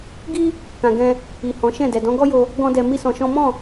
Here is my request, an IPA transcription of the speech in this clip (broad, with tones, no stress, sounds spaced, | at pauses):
ɡ i˦ | k ã˨ ɡ ɛ̃˧ | i˨ h ɔ̃˨˦ ʃ ɛ̃˦˨ d ɛ˨ d ɔ̃˨˦ ɡ ɔ˦ j o˧ | ɡ ɔ̃˦ d ɛ˧ m i˦ s ɔ̃˧ ʃ ɔ̃˦ m ɔ̃˦˨